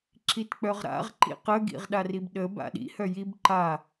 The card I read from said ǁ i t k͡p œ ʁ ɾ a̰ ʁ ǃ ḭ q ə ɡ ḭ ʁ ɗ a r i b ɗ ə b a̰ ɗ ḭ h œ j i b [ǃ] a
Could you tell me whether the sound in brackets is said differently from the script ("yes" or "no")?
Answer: no